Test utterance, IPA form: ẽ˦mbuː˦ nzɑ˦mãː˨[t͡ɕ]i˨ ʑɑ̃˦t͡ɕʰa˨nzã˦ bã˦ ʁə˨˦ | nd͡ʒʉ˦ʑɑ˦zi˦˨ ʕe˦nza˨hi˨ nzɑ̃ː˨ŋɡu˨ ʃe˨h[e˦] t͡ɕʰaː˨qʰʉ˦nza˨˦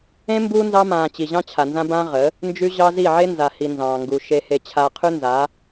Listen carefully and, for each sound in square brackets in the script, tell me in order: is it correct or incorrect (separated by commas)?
correct, incorrect